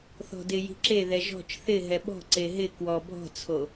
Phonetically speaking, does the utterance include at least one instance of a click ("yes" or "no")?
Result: yes